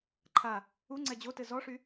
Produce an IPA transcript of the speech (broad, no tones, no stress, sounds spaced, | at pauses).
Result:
ǃʰ a | u ŋ͡ǀ ɛ d͡ʑ o t ɘ z ɔ ʂ y